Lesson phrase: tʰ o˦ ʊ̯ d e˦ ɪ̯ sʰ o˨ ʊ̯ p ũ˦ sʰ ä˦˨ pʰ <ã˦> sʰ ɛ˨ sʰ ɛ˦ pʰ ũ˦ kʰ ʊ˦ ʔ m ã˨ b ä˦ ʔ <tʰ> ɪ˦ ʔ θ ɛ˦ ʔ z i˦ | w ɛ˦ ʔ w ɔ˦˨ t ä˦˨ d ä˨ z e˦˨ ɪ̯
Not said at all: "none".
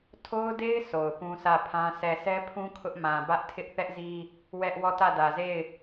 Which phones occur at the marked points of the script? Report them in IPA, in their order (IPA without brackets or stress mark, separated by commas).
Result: ã˦, tʰ